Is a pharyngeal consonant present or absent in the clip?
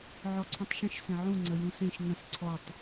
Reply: present